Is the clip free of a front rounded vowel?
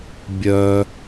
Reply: no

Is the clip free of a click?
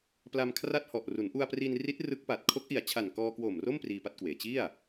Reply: yes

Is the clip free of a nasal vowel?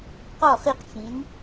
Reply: no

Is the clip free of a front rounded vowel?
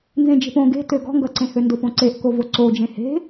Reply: no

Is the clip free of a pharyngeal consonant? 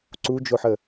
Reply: no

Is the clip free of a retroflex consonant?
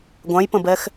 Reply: yes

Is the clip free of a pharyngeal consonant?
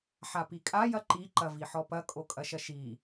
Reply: no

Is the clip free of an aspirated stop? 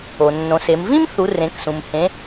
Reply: yes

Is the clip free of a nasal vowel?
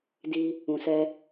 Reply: no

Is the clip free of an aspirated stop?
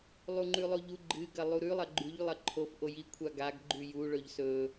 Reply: no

